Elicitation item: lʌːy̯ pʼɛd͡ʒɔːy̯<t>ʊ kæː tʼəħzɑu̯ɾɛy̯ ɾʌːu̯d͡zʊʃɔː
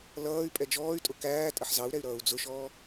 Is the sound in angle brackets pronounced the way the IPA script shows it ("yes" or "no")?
no